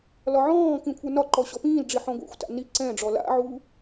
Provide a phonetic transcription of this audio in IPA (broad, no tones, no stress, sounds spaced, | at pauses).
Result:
l ɒ ʕ ɔ̃ː k ĩ kʷʰ ə˞ n ɒ ǃ ɔ ɕ ɔ p ĩː l ɖ͡ʐ i ħ ɔ̃ ɡʷ a̰ xʷ t a̰ n i ǀ ɛ̃ ɖ͡ʐ ɔ l a̰ ʕ uː